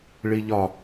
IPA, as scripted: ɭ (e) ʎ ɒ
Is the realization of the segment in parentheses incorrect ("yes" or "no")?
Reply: yes